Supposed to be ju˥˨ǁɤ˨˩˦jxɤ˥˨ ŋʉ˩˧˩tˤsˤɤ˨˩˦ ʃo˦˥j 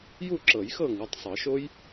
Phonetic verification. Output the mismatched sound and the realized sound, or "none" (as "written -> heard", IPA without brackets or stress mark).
none